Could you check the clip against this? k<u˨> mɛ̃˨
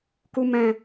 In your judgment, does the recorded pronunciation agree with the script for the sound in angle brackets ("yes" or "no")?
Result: yes